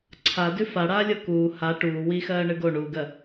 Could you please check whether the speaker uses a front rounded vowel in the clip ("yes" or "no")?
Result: no